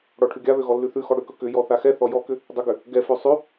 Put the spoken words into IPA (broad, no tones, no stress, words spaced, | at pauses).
ɽɔʈʰʉɡʲaβø ɣɔlːʉθʉxɔ ɽʏkɵ kʏjɔ θaxɛθɔ jɔkʏ | dˤʏɡʏ | ɡɛfø sˤʉ